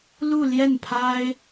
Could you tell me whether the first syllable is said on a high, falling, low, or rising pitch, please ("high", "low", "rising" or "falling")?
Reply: falling